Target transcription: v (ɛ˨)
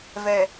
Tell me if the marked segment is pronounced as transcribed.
yes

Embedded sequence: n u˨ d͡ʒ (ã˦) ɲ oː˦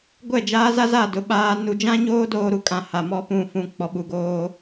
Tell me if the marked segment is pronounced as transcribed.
yes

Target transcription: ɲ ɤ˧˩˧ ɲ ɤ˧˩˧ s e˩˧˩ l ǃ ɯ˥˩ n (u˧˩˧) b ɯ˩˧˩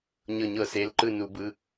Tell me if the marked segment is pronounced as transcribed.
yes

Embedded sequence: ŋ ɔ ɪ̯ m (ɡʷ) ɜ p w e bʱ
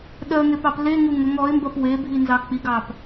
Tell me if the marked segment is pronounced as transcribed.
no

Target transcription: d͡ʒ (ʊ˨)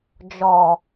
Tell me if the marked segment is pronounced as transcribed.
no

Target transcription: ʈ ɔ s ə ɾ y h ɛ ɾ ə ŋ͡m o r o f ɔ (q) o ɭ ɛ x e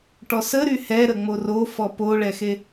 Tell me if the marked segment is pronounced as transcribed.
no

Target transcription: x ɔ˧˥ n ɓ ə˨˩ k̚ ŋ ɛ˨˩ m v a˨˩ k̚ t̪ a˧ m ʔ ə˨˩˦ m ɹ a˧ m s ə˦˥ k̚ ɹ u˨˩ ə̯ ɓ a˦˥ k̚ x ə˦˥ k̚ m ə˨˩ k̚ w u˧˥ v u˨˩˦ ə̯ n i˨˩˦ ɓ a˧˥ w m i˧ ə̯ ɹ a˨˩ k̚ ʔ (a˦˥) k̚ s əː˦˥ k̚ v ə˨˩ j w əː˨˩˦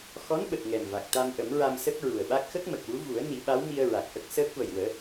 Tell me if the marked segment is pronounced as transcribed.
no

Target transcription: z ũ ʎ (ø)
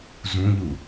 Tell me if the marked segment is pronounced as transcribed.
no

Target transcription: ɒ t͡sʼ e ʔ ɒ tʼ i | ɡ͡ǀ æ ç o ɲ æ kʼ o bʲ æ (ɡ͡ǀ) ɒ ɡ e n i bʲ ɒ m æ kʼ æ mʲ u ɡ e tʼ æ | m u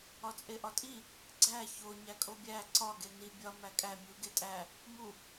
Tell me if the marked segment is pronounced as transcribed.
no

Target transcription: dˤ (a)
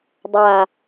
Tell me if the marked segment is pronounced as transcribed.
yes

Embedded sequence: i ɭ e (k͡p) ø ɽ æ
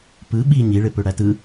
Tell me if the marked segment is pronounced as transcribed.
no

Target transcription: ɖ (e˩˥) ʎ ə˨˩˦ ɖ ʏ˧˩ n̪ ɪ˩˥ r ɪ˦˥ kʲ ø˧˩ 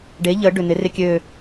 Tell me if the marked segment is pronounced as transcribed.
yes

